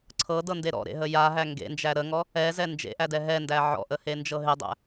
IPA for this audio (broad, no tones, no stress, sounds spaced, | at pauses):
ǀʰ ɤ d ɤ n d e ɾ ɔ̰ ɾ ḛ ɦ ə j a ɦ æ ŋ ɡ ḛ n d͡ʒ æ ɾ ə ŋ ɔ | ɛ z ɛ n d͡ʒ ḛ ʔ æ d ɛ ɦ ɛ n d æ ʕ ɔ̰ ʔ ə h e n d͡ʒ ɤ ɦ ɪ dˤ æ̰